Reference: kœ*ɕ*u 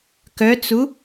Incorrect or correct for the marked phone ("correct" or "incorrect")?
incorrect